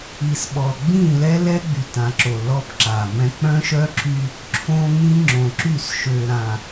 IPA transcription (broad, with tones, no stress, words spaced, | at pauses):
i˨sɓɔ˨ ɡ͡bĩ˦˨lɛ˦lɛ˦ɡ͡by˨ tã˨ǁo˨ lɔ˦pǁa˨mɛ̃˦ k͡pœ̃˦ʃœ˦ ǁy˦ | ǁʰõ˦ŋĩ˦ ŋ͡ǁõ˨ǁy˦˨sʃø˨ ɾã˨